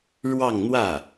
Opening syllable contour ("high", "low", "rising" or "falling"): falling